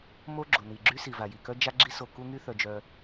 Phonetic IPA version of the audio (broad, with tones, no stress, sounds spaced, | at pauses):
m o˥ ɡ͡ǁ o˩ n i˩ ɡ͡ǁ y˥ s i˩ v a˩ j i˩ k œ˥ d͡ʒ a˥ ɡ͡ǁ i˥ s o˩ k u˥ ŋ y˥ θ œ˩ d͡ʒ œ˩